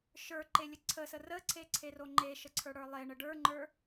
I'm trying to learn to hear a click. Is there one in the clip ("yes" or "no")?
yes